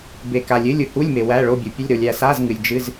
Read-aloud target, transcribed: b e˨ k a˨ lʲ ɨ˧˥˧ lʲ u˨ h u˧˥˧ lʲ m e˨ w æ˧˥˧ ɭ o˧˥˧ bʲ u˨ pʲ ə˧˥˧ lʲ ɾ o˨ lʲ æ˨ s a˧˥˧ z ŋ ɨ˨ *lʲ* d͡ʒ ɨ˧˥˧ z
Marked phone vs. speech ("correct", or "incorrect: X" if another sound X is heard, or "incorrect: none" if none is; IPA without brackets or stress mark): correct